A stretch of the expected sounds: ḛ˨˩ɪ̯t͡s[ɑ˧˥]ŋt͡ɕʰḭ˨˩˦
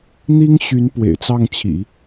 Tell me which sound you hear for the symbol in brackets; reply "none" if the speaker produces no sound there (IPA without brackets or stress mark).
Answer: ɑ˥˩